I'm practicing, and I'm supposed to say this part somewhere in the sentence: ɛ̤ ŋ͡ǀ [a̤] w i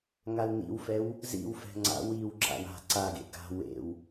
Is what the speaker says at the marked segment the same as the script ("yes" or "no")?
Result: no